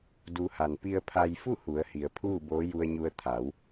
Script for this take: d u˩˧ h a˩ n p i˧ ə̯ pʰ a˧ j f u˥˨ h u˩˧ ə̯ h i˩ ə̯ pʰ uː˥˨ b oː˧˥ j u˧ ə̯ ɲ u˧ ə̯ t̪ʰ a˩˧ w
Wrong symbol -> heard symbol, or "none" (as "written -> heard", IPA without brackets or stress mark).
none